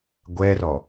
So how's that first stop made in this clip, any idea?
plain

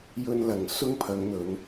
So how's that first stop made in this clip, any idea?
aspirated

